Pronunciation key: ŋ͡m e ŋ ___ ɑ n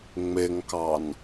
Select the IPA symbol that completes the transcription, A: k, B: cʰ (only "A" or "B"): A